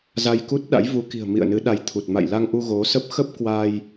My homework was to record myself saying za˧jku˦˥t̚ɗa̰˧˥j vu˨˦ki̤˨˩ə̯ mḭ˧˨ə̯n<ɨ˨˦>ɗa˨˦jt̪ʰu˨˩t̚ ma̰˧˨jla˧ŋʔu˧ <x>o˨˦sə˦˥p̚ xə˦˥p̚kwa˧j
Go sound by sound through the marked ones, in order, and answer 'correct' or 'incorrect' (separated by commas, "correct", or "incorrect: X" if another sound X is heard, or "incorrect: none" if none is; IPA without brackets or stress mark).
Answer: correct, incorrect: ɣ